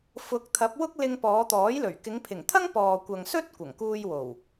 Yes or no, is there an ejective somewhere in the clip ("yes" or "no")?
no